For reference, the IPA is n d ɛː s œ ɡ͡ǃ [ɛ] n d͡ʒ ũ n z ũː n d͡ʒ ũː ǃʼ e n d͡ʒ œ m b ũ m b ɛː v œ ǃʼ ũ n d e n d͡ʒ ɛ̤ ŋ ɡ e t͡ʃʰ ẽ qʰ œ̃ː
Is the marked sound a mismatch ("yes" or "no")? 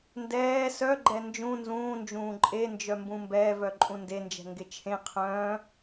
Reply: no